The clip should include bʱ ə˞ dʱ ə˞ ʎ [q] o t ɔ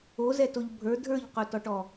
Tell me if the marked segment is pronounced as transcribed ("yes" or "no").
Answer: yes